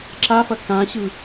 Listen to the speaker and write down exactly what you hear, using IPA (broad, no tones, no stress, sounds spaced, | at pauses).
ǁ a f ɐ k ã ɕ ɯ